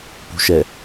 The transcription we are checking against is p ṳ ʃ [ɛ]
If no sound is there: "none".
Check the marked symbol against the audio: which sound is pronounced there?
ɛ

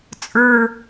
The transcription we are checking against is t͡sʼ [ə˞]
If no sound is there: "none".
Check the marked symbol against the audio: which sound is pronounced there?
ə˞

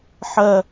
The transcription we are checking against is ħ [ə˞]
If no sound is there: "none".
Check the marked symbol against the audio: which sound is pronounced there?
ɜ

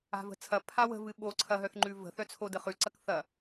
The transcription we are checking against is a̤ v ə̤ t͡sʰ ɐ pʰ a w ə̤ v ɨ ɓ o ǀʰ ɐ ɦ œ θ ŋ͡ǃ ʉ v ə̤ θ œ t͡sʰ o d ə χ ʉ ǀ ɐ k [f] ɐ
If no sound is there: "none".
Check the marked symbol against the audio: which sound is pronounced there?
θ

